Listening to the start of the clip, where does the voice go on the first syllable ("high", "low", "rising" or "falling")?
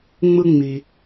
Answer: high